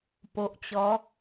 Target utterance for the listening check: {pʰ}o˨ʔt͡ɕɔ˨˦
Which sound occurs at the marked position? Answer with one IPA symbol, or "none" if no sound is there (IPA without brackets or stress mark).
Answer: p